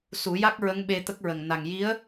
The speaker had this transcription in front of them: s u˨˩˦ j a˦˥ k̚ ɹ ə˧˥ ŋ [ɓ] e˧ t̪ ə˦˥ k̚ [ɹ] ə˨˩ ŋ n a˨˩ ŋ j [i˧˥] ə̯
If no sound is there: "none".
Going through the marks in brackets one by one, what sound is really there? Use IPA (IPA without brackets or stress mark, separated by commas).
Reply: ɓ, ɹ, i˧˥